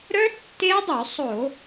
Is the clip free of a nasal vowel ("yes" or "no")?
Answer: yes